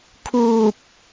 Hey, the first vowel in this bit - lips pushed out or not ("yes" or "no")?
yes